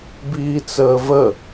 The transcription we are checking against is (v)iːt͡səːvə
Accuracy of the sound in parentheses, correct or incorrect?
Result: incorrect